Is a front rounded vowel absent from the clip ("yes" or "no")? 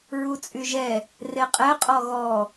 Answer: no